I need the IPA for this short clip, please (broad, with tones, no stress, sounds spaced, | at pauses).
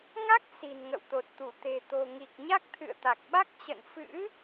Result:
ŋ a˦˥ k̚ s i̤˨˩ n ŋ ə̰˧˨ w t̪ o˨˩ t̚ t̪ u˧˩ t̪ e̤˨˩ t̪ o̤˨˩ ŋ i˨˩ k̚ ɲ a˦˥ k̚ t̪ʰ ɨ̰˧˨ ə̯ t̪ a˨˩ k̚ ɓ a˦˥ k̚ t͡ɕ ə̰˧˨ n f ɨ̰˧˥